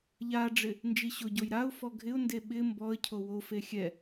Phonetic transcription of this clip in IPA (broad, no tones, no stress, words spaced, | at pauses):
ʎaɖ͡ʐɪ | nd͡ʒiɕʊɟoj ɾaʊ̯ fɔɡʱɪʊ̯nde ɓɪ mbɔə̯cʰo wofe xʲɛ